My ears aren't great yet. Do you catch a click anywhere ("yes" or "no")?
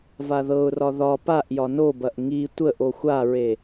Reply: no